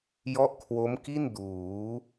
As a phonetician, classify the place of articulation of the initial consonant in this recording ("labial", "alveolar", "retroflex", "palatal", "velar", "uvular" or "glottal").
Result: palatal